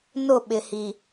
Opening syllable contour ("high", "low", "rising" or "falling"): falling